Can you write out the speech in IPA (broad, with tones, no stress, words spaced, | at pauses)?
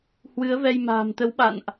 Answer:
hwɨ˨˦ə̯vɛ˧j ma̤ː˨˩mt̪ə˨˦wɓa̰˧˨nʔ